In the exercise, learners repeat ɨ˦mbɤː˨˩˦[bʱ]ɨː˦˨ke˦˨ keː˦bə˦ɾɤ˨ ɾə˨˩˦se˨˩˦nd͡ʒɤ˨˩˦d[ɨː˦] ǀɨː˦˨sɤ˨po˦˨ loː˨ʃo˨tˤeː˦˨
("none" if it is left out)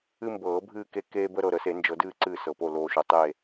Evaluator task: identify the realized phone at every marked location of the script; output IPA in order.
bʱ, ɨː˦˨

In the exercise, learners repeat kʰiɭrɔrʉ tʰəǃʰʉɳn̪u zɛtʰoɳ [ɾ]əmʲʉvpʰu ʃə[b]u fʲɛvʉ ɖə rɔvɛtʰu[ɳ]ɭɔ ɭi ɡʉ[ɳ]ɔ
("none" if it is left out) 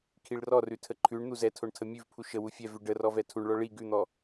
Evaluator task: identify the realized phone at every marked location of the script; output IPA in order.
tʰ, w, ɳ, n̪

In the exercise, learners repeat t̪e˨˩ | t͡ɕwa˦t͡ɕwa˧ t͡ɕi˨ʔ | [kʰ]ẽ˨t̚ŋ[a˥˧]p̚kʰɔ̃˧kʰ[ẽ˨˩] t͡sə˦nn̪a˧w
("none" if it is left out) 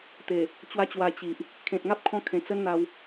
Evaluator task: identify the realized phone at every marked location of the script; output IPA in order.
kʰ, a˦, ẽ˨˩

